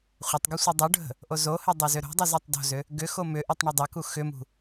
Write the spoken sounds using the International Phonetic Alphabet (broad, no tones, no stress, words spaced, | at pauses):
χʷətˤɡɘ sʷɨdˤuɖʱə̤ | ʔozohɘ dˤozʏɾo̤dˤuz atˤdo̤zʏ | ɡʏxo mʏʔɨtˤ ɳɘdˤaku xʏmṳ